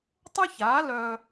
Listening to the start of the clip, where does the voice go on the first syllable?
high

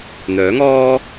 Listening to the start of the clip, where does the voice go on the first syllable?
rising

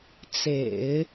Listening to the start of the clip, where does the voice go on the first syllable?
low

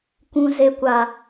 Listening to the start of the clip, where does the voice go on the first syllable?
high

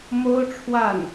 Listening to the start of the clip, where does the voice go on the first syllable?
high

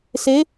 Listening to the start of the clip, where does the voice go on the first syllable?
rising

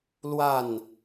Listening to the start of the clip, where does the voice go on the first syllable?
falling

